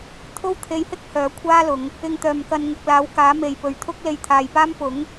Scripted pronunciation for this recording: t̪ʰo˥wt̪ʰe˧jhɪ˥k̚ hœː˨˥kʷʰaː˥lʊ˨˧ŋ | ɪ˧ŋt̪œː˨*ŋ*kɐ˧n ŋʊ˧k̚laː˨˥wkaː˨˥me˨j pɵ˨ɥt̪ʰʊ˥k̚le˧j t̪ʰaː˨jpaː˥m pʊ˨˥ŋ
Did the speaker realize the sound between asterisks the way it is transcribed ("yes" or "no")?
no